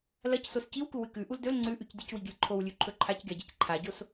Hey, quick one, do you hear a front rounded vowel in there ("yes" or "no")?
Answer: no